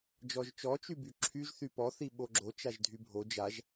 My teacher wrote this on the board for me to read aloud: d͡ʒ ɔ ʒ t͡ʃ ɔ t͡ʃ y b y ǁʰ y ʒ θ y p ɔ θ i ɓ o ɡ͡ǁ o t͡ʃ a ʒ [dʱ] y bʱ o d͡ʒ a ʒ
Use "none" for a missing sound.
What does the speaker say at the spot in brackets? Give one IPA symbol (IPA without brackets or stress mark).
dʱ